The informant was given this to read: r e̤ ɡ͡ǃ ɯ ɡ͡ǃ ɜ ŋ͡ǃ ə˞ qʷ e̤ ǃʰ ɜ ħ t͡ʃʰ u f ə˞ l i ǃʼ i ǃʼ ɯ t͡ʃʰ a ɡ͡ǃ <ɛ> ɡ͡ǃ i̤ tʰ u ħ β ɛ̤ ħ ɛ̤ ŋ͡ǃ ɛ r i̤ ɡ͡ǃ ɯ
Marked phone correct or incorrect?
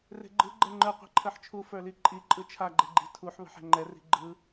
correct